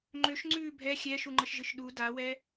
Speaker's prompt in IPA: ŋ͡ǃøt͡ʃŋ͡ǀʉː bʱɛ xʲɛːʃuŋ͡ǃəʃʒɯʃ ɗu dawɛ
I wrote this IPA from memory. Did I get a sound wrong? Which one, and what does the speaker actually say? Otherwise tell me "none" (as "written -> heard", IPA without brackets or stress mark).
t͡ʃ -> ʃ